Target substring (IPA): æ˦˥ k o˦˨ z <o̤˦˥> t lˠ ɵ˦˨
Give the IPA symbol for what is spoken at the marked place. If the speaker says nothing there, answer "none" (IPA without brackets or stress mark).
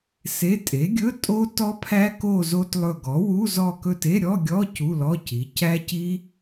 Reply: o˦˥